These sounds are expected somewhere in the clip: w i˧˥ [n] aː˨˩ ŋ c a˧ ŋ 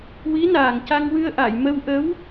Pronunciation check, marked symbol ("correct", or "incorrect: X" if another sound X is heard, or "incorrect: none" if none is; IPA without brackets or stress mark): correct